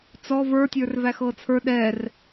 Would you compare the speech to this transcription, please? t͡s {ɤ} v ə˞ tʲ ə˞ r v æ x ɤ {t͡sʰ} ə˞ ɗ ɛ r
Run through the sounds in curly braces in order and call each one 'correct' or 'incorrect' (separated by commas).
incorrect, correct